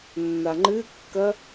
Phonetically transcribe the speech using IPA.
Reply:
nː a ŋ͡ǃ ɨ kː ɐ

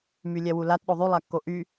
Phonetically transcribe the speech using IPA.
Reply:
m y lʲ ɛ w u l a t ɗ o ðˤ y lˠ a kː o ʔ y

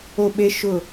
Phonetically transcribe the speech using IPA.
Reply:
o˦˨ ɓ e˦ ʃ ʊ˦˨

